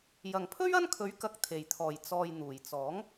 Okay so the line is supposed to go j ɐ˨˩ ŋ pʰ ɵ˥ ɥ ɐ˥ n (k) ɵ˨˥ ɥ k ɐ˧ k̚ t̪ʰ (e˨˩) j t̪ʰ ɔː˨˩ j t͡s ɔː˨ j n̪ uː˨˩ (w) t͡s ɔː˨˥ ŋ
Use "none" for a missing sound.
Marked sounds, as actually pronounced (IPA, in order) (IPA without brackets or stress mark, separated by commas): kʰ, e˨˩, j